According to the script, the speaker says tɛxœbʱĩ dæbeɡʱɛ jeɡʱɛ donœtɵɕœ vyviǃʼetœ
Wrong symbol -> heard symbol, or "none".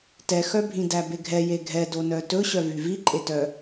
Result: none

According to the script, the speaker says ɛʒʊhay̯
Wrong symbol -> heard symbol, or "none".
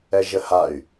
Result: ʊ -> ə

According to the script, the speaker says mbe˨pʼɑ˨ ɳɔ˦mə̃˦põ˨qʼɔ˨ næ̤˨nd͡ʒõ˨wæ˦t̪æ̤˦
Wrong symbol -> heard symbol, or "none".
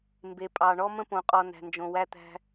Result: none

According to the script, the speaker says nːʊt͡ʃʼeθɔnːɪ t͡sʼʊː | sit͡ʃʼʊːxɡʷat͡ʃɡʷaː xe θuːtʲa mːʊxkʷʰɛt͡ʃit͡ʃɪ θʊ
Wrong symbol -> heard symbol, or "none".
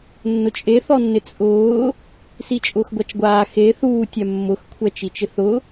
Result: none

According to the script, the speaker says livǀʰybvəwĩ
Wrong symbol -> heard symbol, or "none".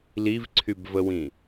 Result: none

